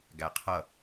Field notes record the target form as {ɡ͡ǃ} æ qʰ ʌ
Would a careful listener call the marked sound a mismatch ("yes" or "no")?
yes